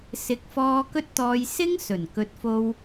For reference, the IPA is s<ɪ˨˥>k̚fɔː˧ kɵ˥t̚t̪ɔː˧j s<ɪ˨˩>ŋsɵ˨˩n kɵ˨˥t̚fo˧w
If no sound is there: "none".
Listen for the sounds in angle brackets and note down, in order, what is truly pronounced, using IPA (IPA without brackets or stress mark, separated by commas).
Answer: ɪ˨˥, ɪ˥